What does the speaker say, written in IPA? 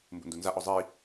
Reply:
m b ṵ n d u n z a ʔ ɔ zˤ i

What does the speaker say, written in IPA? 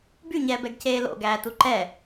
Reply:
b y ɲ ɛː b ɛ ɡ c eː l o̰ ɡ æː t u ǃ ɛ

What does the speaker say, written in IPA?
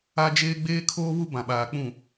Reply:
a˦ d͡ʒ eː˦ ɡ͡b eː˦ kʰ oː˦ β u˦ b ã˨ ɓ aː˨ k͡p ũ˦˨

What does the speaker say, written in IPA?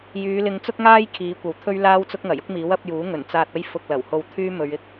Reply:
j yː˨˧ l ɪ˨˧ ŋ t͡s ʊ˥ k̚ ŋ aː˥ j kʰ iː˨˥ kʷ ɐ˨ w t̪ʰ ɵ˥ ɥ l aː˥ w t͡s ʊ˥ k̚ ŋ ɐ˨˩ j ʊ˥ k̚ m iː˨˥ w ɐ˨˥ p̚ j uː˨˥ ŋ ɵ˨˩ n t͡s aː˧ t̚ ɐ˥ j f ʊ˧ k̚ l ɐ˨˩ w h o˧ w t̪ʰ yː˥ m ɵ˨˧ ɥ ɪ˨ k̚

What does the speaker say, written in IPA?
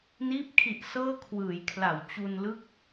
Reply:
n iː˦˥ p̚ kʰ i˨˩ ʔ s ɤː˥˩ kʰ w ɯː˩˦ j kʰ l a˩˦ w t͡ɕ u˧ n l ɯ˥˩ k̚

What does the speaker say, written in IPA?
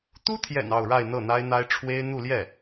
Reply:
t̪ u˥ t̪ʰ j ɛ̰˨˩ n ɑ˥˧ ʊ̯ ɻ a˥˧ ɪ̯ n̪ ɤ˥˩ n̪ a˥ ɪ̯ n̪ a˥ ɪ̯ ʈ͡ʂʰ w e˥ ɪ̯ n̪ u˥˧ l j ɛ˥˩

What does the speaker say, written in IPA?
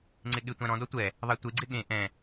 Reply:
ŋ͡ǀ ɪ ɠ ɪ tʷ ã ɾ ɔ̃ d ɔ tʷ ɛ | ðˤ ɛ tʷ e ɡ͡ǀ ɪ ɠ ẽ ʔ ɛ̃

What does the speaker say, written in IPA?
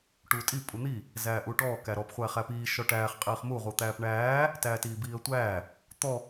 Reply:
ʈ uː tʼ i pʼ u n̪ i | z æː ʔ uː ʈ ɔː k æ ɾ ɔ p χʷ æː χ æ p iː ʃ ɔ ʈ æː χ qʼ iː χ m u ʁ u t̪ æː p ɳ æː | t æː t iː b iː ə̯ tʷ æː | t̪ ɔ

